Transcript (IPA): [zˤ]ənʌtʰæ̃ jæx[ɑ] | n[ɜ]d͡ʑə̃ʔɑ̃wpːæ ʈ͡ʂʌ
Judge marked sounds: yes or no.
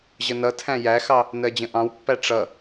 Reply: no, yes, yes

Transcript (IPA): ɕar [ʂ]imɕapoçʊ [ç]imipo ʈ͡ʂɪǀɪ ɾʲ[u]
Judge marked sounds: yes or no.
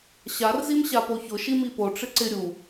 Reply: no, no, yes

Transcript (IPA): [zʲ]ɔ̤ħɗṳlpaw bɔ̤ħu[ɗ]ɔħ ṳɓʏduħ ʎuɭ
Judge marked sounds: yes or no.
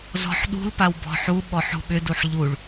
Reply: no, no

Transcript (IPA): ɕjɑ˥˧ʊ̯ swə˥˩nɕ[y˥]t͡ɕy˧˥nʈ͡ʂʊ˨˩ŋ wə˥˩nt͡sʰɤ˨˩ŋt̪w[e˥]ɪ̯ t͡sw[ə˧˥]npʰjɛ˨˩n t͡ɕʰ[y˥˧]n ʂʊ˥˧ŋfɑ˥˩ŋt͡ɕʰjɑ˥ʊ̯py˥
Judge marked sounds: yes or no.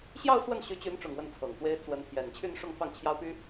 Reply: no, yes, yes, yes

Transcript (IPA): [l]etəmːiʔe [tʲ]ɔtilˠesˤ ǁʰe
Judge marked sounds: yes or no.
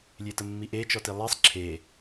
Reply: no, no

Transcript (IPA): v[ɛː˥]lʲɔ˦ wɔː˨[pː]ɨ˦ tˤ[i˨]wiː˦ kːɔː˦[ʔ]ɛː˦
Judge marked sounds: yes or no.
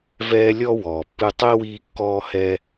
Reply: no, yes, no, no

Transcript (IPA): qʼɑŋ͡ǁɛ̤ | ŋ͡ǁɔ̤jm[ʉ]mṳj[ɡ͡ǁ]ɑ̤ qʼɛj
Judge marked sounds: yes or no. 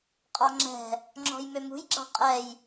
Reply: no, yes

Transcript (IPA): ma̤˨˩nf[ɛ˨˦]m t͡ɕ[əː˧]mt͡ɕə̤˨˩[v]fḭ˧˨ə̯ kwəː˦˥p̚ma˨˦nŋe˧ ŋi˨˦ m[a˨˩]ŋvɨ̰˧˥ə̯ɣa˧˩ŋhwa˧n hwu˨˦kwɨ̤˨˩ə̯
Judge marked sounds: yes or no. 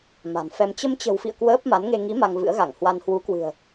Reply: no, no, no, no

